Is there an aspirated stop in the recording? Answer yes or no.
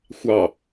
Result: no